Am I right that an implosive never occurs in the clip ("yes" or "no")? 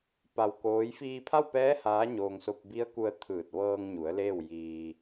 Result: yes